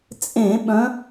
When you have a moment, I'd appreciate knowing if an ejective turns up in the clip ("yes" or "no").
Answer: yes